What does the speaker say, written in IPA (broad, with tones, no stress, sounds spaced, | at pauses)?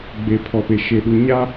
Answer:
ɡ͡b e˨ pʰ ɔ˨ p e˨ ʃ e˨ ɗ u˨ ɲ a˦